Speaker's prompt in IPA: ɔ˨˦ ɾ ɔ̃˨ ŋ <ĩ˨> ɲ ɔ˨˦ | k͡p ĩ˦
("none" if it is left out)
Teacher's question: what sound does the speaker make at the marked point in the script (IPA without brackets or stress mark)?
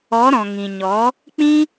ĩ˨